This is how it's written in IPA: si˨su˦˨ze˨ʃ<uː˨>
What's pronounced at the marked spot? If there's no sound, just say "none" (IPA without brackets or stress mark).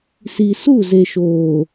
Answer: oː˨